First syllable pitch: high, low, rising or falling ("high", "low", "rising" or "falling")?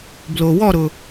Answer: low